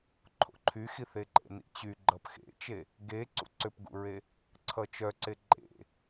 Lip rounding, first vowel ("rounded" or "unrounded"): rounded